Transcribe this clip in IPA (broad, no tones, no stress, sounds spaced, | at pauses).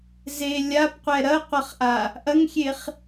z e lʲ a p qʷ ɛ ɾ ɐ qʷ ɐ χ ʔ a | ʔ ɐ ŋ xʲ e χ